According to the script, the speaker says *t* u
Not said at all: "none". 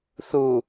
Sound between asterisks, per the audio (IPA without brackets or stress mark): θ